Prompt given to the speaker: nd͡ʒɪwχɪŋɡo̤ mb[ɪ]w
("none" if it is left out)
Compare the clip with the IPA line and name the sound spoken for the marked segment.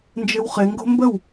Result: ə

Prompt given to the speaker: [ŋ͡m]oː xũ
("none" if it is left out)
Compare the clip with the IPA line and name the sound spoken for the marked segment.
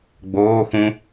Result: ɡ͡b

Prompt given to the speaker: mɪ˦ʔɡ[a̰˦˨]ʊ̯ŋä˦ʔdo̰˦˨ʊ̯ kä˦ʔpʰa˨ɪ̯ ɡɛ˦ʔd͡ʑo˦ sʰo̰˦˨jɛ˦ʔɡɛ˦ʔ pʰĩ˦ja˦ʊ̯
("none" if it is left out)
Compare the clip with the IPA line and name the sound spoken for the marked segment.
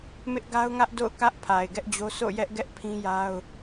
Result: a˦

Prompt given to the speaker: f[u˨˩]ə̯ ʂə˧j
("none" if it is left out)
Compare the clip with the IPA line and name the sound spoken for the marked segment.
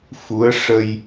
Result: u˧˥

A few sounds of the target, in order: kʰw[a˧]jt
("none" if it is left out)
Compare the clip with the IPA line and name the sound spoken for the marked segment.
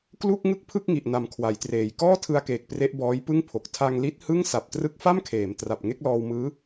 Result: a˩˦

